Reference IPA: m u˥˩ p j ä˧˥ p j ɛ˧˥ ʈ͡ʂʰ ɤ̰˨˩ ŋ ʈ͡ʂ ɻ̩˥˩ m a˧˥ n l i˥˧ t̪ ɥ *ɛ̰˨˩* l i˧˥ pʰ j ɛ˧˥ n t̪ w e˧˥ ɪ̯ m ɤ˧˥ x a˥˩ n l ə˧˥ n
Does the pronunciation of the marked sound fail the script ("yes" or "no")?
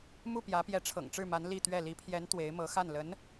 yes